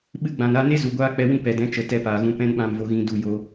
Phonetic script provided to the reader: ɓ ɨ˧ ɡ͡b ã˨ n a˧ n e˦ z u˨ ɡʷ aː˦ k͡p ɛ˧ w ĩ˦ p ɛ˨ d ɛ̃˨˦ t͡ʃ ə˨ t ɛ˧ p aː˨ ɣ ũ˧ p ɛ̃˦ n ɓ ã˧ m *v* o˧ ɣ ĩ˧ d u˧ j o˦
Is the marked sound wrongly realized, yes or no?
no